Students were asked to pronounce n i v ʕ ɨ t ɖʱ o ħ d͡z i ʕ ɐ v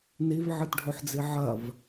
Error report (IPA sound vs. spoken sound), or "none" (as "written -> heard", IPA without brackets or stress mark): none